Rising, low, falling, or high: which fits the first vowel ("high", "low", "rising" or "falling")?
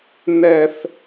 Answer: low